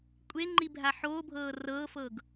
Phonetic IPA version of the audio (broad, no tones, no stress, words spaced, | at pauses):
kʷʼeŋ͡ǃi bʱaħoːbʱɤː rɤːfɤːɡ